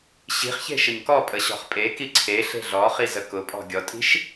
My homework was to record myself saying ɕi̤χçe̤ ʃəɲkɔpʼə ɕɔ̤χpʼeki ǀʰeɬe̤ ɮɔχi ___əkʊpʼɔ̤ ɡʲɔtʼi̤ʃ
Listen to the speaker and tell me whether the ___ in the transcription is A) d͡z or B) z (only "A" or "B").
B